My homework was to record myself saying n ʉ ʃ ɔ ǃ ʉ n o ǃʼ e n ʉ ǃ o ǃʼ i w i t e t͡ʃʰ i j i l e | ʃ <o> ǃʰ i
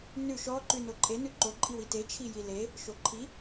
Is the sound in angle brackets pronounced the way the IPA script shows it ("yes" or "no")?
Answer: yes